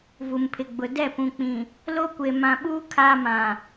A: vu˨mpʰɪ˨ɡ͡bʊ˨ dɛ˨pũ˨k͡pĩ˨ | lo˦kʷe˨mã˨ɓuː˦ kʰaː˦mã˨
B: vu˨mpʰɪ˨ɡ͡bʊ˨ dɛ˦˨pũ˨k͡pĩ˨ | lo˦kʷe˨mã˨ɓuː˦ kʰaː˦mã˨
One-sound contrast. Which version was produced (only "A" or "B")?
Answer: B